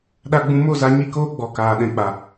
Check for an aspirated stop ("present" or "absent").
absent